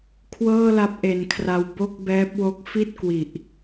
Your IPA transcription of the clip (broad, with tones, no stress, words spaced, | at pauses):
kʰwɤː˥˩la˦˥p̚ʔe˨˩nkʰra˧w bo˥˩k̚bɛː˦˥p̚wo˦˥k̚ fi˥˩t̚kwi˨˩ʔ